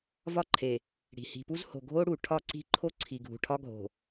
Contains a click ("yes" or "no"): yes